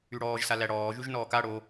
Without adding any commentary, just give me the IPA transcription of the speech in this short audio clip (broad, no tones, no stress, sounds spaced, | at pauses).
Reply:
y ɽ ɔː ʒ s a l æ ɽ ɔː ʒ y ʒ n ɔː k a ɽ o